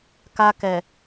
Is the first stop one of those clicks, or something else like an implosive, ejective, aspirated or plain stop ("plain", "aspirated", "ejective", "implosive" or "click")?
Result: plain